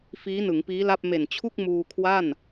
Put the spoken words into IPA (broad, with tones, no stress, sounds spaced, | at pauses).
f iː˦˥ n ɯ˩˦ ŋ p iː˦˥ l a˥˩ p̚ m e˨˩ n t͡ɕʰ u˥˩ k̚ m uː˧ kʰ w a˥˩ n